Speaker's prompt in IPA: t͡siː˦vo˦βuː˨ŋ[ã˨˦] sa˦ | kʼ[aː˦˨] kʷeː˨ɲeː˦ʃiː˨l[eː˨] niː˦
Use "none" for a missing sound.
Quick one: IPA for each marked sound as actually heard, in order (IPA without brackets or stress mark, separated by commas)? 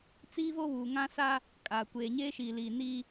ã˦, aː˨, iː˨